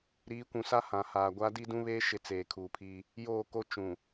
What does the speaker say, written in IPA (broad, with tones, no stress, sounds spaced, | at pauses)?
ɾ iː˨˦ kʷ ũ˨ s a˦ h ã˨ h aː˨ ɡʷ a˦ d i˦ d ũ˦ β eː˦ ʃ ɪ˦˨ t͡s eː˨ kʰ uː˨ pʰ iː˦ | j oː˦˨ k o˦ t͡ʃ ũ˨